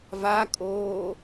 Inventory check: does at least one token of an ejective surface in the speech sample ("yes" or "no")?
yes